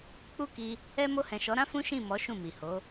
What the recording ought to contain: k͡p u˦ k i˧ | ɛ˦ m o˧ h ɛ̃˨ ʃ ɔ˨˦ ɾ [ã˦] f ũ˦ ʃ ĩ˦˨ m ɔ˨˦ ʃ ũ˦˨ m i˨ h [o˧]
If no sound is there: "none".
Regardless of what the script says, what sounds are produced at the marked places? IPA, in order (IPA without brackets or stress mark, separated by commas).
ã˦, o˨˦